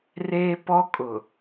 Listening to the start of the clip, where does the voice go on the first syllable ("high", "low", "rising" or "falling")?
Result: high